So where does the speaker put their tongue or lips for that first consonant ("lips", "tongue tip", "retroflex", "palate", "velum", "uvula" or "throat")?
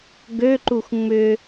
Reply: velum